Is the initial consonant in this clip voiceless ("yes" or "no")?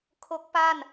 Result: yes